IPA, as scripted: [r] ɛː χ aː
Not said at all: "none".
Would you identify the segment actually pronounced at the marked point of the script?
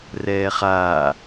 r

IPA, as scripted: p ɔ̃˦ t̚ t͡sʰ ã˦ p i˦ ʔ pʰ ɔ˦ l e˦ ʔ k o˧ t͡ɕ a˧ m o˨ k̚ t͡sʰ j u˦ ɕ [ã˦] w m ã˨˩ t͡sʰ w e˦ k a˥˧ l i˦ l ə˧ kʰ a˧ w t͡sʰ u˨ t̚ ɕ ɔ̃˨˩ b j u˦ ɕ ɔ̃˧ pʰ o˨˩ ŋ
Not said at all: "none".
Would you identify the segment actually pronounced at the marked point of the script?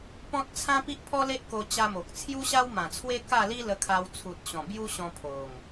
a˦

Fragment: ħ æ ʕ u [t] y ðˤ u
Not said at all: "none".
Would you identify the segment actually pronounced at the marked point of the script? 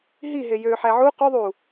q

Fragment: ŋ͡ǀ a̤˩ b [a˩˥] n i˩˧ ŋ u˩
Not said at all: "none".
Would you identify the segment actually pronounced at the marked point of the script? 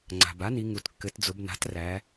a˩˥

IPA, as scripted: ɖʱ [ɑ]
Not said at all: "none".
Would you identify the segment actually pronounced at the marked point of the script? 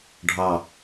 ɑ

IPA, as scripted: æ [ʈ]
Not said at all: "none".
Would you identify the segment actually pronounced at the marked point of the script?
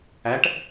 ʈ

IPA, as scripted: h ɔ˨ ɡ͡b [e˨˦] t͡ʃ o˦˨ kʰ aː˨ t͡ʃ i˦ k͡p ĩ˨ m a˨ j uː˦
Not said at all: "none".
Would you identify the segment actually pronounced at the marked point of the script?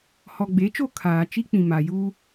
e˨˦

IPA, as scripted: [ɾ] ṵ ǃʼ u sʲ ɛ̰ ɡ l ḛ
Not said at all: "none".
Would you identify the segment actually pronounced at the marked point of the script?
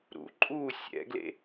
ɾ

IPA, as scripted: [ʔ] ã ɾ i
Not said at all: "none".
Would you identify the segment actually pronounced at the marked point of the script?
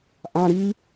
ʔ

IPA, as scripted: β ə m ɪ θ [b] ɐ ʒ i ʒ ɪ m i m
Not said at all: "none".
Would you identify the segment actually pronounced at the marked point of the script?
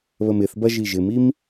b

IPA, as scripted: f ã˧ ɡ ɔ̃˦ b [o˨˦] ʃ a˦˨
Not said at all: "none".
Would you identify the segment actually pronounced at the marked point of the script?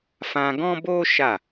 o˦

